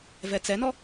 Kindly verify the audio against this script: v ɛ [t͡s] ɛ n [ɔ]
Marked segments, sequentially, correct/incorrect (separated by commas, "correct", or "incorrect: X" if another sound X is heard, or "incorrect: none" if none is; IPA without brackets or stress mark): correct, correct